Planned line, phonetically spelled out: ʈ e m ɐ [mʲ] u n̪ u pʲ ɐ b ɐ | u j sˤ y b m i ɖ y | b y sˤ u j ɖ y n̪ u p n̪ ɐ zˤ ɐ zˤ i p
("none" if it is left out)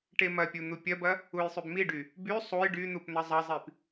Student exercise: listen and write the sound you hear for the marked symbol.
pʲ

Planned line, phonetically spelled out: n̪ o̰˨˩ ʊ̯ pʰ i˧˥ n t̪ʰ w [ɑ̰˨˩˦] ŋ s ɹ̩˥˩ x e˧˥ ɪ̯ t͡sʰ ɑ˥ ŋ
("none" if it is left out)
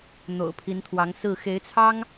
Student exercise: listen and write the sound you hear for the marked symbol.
ɑ˧˥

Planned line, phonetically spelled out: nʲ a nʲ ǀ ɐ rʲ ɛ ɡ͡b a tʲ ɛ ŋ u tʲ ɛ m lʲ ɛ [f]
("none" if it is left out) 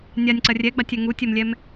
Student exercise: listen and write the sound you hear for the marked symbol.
m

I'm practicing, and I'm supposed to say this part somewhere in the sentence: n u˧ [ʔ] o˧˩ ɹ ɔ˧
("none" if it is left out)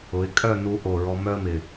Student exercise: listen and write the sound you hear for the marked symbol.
ʔ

